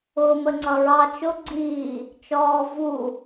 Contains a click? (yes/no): yes